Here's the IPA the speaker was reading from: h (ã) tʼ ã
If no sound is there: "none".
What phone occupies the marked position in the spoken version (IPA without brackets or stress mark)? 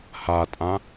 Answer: a